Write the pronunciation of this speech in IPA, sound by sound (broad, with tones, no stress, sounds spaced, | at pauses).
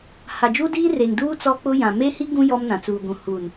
h a˨ d͡ʒ uː˦ d iː˦ r e˨ ŋ d uː˦ t͡s ɔ˦ k͡p ʊ˦ j ã˨ m e˦ h i˦ ɡ ũ˦ j ɔ˦ m n ã˨ t͡s uː˨ ɡʷ ũ˨ h uː˨ n